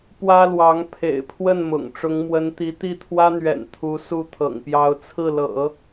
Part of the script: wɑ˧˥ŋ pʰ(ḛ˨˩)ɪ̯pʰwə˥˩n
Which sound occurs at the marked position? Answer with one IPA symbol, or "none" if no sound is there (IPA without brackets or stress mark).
ḛ˨˩